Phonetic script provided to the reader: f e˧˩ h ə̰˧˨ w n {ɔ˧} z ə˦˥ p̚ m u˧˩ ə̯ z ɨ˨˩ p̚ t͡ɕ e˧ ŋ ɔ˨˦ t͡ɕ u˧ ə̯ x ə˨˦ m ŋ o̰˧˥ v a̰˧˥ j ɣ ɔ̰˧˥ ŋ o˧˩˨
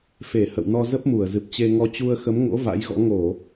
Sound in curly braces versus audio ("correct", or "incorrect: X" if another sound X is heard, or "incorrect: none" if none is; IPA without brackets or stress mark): correct